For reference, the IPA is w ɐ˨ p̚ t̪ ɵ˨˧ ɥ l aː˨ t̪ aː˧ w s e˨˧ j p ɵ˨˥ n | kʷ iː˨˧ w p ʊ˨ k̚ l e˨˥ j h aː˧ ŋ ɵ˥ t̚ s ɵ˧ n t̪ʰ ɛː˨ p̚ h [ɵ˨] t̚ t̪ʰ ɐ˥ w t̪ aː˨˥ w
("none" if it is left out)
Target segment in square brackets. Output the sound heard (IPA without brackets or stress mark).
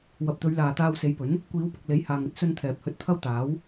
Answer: ɵ˧